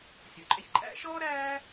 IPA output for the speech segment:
sʲ ɔ˩ ǃʼ ɛ˧ ç ǃʼ æ̰˧˥ ʃ ɔː˥ ɾ æː˥

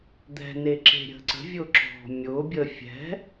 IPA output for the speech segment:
d̪ ɛ̤ n e ǁ e̤ ɾʲ ə̤ ǀ ə̤ vʲ ʊ ǁ ɔ̤ mʲ ʊ bʲ ə fʲ ɛ̤

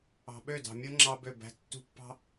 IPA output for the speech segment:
ɑ̤˨ ɓ ø˦˨ d ɑ̤˨ mʲ o˦ ŋ͡ǁ ɑ˦ b ø˦˨ b æ̤˦ tː ṳ˦ pː ɑ̤˦

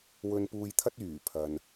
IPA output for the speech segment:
w ɵ˨ n p uː˨ j t̪ʰ ɐ˧ t̚ yː˨˩ pʰ ɐ˨ n

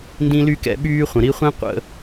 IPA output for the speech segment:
n d ĩ˥ l y˥ k ɛ̰˦ ɓ yː˥ χʷ ə̃˨ ɾ i˥ χʷ ĩ˥ qʷ ə̰˦

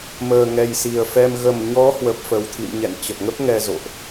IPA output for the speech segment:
m əː˨˩ ŋ ɛ˨˩ j s i˨˩ ə̯ f ɛ˧ m ɣ ə˨˩ m ɲ ɔ˨˦ h w ə˨˩ p̚ f ə˨˩ w t̪ʰ ḭ˧˨ m ɲ ɛ̰˧˨ n t͡ɕ ə˨˩ p̚ ŋ ə˦˥ p̚ ŋ ɛ˧ z o̰˧˨ ʔ

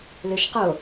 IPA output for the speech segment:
l ø ʃ q o

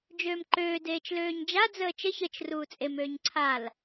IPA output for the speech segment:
d͡ʒ øː m ǃ øː d eː t͡ʃ l øː ɲ d͡ʒ a d͡z əː t͡ʃ ə ç ə t͡ʃ r uː t͡sʼ e m øː ɲ ǀʰ a l

